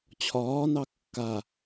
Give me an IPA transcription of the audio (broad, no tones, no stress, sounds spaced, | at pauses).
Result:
t͡ɕʰ ɒː n ɑ kː a